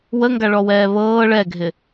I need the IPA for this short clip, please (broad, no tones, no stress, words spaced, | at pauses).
wəŋɡaɭɔwɛː βɤː ɭɛɡʱɪ